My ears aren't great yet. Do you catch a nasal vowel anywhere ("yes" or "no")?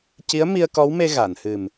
no